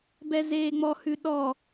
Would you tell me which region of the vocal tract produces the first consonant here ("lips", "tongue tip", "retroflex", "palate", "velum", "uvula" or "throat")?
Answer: lips